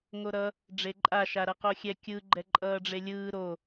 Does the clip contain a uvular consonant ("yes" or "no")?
yes